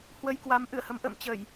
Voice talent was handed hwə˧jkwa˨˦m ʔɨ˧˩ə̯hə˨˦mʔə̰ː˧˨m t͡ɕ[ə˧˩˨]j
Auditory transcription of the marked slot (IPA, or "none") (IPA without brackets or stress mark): ə˧˩˨